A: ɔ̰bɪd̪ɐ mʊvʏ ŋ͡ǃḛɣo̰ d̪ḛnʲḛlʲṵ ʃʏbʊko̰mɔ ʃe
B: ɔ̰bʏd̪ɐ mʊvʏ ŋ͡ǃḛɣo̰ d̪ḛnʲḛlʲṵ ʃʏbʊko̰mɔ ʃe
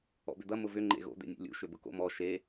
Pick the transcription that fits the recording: B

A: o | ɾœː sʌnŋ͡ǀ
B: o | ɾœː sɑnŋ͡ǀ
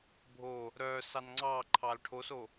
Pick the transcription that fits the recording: B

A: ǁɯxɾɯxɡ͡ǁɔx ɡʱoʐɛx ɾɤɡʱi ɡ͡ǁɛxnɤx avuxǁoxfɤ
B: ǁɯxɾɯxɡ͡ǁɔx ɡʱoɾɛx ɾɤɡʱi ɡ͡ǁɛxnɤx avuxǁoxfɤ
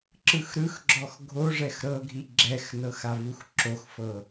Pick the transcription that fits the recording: A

